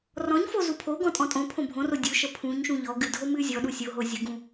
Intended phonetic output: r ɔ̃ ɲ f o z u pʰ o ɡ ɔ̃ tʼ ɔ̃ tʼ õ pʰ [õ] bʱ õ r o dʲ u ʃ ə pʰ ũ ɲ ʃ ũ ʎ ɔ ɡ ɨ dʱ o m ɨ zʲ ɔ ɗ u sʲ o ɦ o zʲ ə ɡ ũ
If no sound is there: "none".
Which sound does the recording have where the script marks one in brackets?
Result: õ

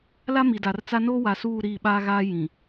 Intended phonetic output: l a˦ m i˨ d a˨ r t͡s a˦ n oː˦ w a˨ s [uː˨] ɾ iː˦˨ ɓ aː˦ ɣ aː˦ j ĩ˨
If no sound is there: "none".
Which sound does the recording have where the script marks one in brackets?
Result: uː˦˨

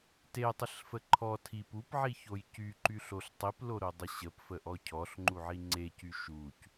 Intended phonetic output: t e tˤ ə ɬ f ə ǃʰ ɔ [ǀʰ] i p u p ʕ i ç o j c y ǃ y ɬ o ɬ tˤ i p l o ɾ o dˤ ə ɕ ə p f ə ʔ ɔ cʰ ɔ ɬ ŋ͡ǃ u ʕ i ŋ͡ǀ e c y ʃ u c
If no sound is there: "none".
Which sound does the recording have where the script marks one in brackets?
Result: tʰ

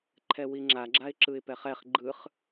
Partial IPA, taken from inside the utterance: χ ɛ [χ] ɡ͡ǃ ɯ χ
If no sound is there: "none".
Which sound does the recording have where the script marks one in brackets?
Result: χ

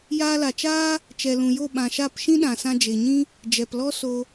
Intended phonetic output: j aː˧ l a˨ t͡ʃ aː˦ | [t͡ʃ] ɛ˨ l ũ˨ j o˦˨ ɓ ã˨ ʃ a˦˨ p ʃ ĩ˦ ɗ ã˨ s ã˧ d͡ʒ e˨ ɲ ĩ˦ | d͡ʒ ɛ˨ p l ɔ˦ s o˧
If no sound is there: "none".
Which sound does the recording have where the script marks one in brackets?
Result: t͡ʃ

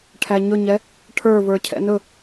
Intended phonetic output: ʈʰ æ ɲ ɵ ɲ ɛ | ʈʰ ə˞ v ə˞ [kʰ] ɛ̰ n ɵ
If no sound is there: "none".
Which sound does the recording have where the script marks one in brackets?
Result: cʰ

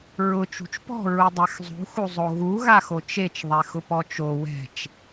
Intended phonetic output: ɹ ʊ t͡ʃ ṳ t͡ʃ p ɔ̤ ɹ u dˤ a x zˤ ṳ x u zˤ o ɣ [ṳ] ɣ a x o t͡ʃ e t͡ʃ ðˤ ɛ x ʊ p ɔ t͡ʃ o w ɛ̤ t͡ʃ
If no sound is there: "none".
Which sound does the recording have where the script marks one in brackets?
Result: u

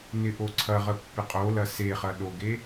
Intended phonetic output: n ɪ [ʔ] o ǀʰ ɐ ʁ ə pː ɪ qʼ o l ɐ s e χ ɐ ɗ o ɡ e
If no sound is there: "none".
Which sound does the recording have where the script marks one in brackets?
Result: ʔ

